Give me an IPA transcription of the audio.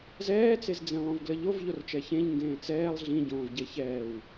zɛːt͡sezd͡zẽ lˠõvɡləʎov ʎort͡ʃɛçẽʎ ŋɡẽːt͡sɛːlˠ ɮĩɟõːvɟe çɛːw

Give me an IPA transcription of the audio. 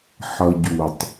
ħʌɟutˤ

